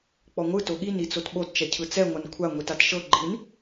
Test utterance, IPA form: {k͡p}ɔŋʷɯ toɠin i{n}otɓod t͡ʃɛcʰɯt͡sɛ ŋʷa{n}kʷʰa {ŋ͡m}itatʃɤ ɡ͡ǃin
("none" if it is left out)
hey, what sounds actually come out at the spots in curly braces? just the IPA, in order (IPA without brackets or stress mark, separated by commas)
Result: k͡p, t͡s, n, ŋʷ